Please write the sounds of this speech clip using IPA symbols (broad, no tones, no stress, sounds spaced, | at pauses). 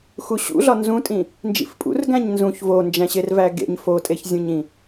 x u ɕ ṵ ɮ ɒ n z ũ tʼ ĩ | n d͡ʒ ḭ f pʼ ṵ r ɡ æ̃ ɲ n z ũ ç v o n d͡ʒ æ̃ ɕ e r v æ ɡ ḛ ɲ f o tʼ e ç zʲ ũ ɲ ĩ